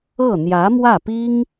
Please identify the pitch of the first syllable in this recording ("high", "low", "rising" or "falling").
falling